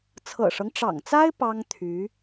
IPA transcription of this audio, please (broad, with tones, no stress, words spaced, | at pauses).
t͡sʰɤ̰˨˩ʂɤ˦ŋʈ͡ʂɑ̰˨˩ŋt͡sa˥ɪ̯ pɑ˥ŋt̪ʰy˧˥